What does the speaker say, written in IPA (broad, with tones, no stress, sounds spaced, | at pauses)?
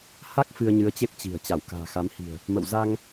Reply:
h a˦˥ k̚ f ɨ˧ ə̯ ɲ ɨ˨˦ ə̯ t͡ɕ e˦˥ p̚ t͡ɕ i̤˨˩ ə̯ t͡ɕ a˧˩ w k a̤ː˨˩ x a˨˦ m h i̤˨˩ ə̯ | m ə̰˧˨ w z a˧ ŋ